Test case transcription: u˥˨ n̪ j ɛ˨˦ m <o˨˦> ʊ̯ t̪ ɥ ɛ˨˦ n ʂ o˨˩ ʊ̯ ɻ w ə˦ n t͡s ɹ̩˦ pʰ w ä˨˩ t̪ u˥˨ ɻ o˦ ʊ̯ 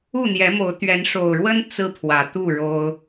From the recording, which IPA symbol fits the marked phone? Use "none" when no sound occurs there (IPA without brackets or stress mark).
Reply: o˨˦